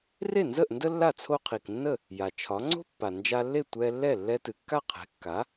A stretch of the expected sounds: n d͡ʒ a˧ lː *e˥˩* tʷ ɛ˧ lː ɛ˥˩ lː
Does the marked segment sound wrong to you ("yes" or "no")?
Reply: no